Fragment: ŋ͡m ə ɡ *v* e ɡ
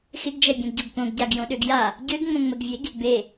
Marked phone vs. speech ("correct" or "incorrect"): incorrect